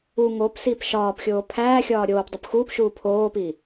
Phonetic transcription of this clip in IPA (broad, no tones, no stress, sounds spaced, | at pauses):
u ŋ o p s i p ʃ ɒː p xʲ oː pʰ æː xʲ ɒː ɾʲ oː p dˤ u p x uː p ʃ uː pʰ oː p i